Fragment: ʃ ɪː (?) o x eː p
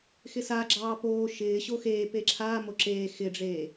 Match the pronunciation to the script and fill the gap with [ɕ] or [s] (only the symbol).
ɕ